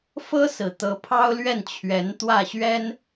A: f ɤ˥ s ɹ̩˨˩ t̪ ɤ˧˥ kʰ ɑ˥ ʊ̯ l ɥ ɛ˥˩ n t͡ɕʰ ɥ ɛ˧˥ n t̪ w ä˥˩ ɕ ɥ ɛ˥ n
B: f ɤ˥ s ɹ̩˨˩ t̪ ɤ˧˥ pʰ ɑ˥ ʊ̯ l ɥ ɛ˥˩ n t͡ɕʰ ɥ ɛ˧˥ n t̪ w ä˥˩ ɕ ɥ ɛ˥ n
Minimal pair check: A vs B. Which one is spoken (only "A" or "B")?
B